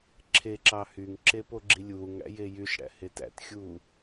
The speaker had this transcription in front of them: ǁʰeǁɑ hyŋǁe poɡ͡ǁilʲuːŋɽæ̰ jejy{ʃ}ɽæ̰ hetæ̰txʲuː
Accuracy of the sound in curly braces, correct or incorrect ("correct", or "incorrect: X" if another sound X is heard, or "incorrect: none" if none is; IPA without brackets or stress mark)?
correct